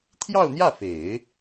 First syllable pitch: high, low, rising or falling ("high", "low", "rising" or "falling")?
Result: falling